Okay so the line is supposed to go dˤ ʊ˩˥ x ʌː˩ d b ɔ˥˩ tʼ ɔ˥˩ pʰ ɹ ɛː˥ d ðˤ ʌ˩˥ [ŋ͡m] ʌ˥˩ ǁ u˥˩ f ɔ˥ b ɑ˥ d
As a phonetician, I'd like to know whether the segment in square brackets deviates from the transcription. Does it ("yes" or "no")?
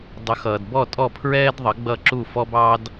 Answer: yes